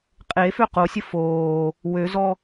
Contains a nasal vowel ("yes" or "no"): no